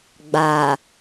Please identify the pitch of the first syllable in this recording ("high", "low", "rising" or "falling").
low